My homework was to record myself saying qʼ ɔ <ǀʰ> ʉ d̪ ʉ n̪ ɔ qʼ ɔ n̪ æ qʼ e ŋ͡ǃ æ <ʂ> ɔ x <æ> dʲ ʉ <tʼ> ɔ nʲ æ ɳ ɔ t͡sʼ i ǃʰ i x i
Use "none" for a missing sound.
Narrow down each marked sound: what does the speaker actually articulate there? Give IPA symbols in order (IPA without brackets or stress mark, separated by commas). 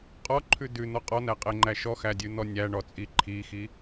ǃʰ, ʃ, æ, n̪